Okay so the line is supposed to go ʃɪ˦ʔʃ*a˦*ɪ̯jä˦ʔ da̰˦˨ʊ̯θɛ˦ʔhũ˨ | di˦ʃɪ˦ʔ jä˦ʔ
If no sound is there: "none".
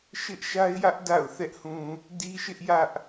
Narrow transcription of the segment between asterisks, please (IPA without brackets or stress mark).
a˦